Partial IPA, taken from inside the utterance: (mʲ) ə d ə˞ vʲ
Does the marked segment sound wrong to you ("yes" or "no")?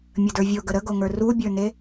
no